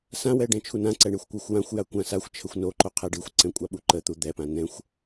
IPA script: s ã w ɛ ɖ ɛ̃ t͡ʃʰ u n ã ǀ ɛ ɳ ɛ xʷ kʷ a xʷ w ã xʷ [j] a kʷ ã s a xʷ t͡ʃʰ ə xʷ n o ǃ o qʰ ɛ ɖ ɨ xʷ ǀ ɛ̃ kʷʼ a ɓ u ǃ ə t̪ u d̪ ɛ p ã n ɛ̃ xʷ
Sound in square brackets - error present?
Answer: no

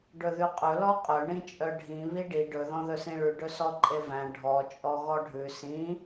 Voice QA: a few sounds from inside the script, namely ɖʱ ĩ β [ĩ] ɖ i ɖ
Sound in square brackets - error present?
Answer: yes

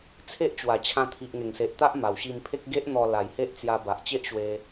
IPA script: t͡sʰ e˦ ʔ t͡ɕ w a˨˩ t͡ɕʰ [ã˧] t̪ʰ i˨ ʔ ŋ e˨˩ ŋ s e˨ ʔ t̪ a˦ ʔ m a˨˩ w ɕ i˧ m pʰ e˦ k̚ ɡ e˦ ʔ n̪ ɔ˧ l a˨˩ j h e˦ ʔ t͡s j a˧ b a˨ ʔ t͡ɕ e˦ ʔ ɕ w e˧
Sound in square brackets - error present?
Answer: no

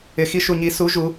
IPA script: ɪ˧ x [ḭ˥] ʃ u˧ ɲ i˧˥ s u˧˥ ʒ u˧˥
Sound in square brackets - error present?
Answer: yes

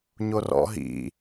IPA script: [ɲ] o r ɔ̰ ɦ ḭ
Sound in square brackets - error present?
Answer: no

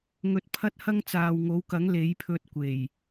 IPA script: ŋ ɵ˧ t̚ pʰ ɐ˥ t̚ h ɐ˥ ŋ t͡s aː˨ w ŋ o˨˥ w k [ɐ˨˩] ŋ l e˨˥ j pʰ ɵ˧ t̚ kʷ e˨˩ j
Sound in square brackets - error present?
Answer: yes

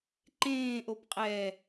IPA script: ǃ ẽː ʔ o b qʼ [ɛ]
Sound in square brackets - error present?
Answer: no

